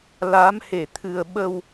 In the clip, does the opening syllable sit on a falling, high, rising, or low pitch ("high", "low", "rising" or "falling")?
rising